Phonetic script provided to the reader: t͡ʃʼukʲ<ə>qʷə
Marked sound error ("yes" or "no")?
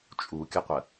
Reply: no